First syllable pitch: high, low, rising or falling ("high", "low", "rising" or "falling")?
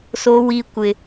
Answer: high